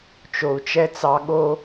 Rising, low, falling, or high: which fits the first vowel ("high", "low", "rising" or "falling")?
low